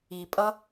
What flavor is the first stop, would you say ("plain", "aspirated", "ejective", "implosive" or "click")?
ejective